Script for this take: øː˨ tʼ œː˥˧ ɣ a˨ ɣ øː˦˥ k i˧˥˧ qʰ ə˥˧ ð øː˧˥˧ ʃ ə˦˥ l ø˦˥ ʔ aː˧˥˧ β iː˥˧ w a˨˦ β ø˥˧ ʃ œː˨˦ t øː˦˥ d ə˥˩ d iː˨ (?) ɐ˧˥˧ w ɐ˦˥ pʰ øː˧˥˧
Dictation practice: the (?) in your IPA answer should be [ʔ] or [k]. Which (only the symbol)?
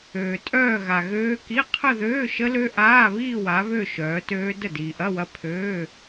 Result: ʔ